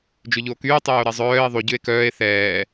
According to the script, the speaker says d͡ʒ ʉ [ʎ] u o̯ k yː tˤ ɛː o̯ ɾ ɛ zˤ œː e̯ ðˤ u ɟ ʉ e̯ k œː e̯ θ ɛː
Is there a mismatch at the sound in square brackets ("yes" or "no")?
no